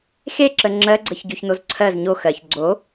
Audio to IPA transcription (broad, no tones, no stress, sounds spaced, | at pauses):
x e ǁ ə ŋ͡ǁ ɜ ɡ͡ǀ ə ç ɟ o ç n o z ǀʰ ɜ z ɲ o x ɜ ç ɡ͡ǀ o